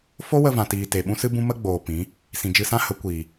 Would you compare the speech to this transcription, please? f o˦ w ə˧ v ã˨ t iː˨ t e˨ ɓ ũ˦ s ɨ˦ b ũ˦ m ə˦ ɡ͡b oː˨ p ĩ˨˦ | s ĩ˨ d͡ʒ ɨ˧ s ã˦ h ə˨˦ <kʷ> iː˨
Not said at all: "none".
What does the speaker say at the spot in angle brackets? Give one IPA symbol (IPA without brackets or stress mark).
kʷ